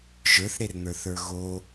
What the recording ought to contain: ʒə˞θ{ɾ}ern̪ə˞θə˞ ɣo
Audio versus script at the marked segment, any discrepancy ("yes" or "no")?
no